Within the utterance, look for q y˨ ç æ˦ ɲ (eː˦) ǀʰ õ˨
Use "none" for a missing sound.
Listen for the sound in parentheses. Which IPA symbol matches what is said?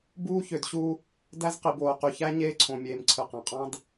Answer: eː˦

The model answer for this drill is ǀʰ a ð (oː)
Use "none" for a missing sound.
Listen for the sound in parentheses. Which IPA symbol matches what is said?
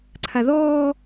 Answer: ɔː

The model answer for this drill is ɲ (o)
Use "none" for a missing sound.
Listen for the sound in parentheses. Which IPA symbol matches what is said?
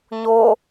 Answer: o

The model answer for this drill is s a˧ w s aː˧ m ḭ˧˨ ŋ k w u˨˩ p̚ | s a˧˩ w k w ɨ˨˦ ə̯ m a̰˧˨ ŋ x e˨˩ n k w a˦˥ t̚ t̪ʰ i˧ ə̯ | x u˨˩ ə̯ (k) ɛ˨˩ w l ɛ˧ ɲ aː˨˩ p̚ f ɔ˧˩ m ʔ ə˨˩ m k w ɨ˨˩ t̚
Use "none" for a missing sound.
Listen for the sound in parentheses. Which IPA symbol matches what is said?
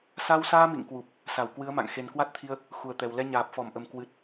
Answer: t̪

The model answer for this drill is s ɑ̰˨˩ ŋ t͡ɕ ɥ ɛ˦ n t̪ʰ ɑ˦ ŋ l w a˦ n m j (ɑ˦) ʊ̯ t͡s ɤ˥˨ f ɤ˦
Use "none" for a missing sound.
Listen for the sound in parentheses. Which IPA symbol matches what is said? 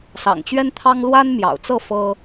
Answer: ɑ̰˨˩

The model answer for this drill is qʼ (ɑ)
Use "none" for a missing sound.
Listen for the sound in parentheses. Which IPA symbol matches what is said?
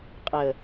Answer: ə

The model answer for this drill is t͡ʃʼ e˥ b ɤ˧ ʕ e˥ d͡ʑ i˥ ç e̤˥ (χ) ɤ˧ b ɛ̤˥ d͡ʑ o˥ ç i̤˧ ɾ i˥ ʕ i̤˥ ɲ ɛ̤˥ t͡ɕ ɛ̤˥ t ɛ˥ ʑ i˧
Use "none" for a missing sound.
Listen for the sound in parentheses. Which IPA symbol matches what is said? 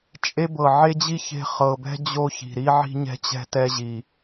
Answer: χ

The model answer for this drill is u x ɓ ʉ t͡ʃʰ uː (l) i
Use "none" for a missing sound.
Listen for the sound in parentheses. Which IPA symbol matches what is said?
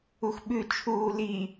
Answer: l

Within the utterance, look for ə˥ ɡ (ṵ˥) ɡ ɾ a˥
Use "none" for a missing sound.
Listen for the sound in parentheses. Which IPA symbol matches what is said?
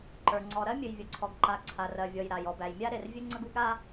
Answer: u˥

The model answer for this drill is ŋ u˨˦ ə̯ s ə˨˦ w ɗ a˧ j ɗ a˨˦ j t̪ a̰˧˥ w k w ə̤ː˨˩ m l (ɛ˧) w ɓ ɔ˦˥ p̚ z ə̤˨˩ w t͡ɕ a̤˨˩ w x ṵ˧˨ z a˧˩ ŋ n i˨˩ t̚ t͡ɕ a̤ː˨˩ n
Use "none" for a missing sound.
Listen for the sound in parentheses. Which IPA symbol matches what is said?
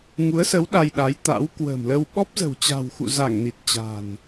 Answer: ə˧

